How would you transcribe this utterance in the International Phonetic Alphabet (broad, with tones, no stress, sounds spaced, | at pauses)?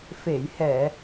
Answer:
f e˨˩˨ j h ɛ˨˩˨